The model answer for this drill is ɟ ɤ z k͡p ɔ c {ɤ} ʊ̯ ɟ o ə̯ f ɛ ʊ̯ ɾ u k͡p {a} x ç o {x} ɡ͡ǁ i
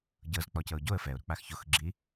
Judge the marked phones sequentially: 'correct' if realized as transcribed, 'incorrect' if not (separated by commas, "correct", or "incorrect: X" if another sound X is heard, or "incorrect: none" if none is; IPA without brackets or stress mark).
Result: correct, correct, correct